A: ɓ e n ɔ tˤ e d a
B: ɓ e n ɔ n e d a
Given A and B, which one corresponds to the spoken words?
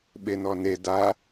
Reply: B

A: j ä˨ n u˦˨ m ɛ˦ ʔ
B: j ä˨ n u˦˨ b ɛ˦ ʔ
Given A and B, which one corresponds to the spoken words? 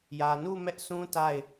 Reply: A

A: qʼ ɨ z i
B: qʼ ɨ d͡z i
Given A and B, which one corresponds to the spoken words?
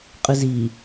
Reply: A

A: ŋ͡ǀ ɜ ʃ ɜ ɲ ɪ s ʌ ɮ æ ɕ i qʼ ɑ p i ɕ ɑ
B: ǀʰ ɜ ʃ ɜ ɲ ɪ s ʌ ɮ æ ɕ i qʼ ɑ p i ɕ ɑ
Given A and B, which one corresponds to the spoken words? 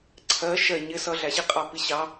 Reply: B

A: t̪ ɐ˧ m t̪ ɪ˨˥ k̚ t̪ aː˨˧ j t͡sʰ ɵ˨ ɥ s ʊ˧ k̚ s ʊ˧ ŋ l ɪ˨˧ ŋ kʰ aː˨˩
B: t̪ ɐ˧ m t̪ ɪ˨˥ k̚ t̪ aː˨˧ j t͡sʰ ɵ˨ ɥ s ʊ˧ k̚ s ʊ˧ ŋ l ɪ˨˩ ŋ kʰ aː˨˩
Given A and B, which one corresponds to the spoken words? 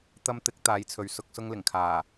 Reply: B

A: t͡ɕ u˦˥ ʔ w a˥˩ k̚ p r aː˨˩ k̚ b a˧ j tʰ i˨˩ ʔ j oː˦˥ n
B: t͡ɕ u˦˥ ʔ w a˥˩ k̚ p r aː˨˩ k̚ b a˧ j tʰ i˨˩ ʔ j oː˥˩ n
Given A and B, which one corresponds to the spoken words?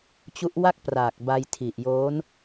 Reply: A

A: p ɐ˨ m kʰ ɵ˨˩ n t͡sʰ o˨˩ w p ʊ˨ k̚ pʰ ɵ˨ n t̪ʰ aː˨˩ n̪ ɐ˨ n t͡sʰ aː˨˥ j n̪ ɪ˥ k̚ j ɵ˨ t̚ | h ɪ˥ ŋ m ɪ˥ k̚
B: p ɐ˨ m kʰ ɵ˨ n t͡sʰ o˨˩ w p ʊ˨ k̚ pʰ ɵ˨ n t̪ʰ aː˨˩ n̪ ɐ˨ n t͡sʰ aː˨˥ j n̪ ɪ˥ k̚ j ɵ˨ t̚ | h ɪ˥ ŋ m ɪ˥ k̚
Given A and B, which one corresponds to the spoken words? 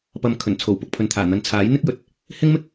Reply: A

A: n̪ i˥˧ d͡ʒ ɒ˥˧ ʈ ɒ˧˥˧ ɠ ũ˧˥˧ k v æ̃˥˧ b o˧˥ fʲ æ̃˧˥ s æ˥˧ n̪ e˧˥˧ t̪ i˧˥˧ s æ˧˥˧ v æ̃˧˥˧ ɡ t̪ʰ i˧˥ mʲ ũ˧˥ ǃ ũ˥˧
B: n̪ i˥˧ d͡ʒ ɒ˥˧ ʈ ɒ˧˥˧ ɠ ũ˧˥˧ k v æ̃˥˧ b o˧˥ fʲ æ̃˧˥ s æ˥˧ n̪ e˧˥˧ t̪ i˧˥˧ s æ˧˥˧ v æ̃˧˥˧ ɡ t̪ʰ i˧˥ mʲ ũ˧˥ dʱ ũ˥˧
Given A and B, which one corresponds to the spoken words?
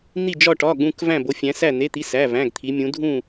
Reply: B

